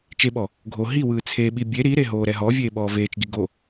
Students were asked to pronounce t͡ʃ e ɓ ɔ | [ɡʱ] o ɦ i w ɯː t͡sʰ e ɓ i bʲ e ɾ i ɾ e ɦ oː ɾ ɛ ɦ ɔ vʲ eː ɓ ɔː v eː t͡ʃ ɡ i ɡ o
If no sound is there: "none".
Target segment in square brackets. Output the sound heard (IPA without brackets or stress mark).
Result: ɡʱ